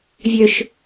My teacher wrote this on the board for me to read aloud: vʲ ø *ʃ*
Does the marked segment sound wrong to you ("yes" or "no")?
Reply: no